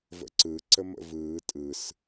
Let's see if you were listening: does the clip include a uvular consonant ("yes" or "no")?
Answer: no